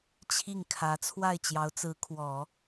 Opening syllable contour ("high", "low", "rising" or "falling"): falling